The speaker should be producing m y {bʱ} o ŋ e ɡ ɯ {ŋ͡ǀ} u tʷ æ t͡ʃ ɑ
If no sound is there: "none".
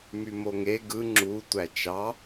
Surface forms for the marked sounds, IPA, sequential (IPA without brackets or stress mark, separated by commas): m, ŋ͡ǁ